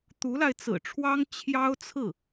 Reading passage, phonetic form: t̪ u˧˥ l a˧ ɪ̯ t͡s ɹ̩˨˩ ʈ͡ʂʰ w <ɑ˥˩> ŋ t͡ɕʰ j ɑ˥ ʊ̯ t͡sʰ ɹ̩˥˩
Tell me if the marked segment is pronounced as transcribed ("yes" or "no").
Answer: no